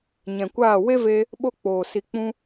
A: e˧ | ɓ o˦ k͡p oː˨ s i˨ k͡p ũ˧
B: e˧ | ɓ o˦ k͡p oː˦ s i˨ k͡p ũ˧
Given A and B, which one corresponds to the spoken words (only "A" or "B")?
A